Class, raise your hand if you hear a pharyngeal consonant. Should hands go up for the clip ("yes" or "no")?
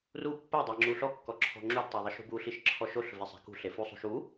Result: no